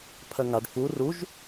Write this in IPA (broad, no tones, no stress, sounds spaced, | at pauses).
pʰ ɜ ŋ a ɖ f u r u ʒ